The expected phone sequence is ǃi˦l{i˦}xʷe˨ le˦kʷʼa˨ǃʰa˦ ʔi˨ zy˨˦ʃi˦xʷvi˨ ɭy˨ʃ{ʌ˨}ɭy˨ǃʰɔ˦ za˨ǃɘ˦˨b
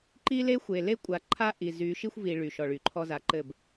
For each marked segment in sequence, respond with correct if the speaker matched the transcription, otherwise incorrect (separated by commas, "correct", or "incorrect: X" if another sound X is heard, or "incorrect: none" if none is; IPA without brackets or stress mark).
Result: incorrect: e˦, incorrect: ɔ˨